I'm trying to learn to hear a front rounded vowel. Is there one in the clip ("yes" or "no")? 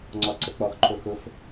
no